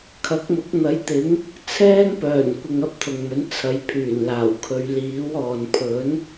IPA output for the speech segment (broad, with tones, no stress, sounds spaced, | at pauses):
kʰ ɐ˨˥ k̚ m ʊ˨˥ k̚ n̪ ɐ˨˥ j t̪ ɪ˨˥ ŋ | t͡sʰ ɛː˥ ŋ p œː˨˩ n kʷ ɪ˨ ŋ ɐ˥ p̚ t̪ʰ ʊ˨ ŋ m ɵ˨˥ n t͡sʰ ɐ˨˥ j pʰ yː˨˩ n l aː˨˩ w kʰ ɵ˨˧ ɥ l iː˨˥ w ɔː˨ n pʰ ɵ˨˥ n